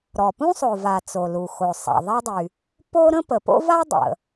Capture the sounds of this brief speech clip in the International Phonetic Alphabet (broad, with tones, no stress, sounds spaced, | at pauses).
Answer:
ɾ ɔ˩ p ũ˥ sˤ o˩ v a˩ t͡s o˩ l u˩ x o˩ sˤ a̰˩ ðˤ a˥ dˤ y˩ | p o˥ ɾ ə̃˥ p ə˩ p o̰˥ v a˥ dˤ ə̰˩